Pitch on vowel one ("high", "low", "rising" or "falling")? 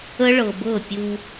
high